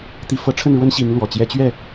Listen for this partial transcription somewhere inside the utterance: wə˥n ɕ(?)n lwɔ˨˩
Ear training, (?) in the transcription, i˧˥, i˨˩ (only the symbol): i˧˥